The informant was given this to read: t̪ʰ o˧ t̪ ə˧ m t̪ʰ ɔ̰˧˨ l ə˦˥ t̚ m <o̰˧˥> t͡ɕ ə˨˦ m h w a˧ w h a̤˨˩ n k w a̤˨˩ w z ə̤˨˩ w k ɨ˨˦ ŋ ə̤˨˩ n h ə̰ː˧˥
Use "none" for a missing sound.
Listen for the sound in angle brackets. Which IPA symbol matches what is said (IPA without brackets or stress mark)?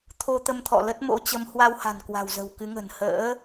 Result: o̰˧˥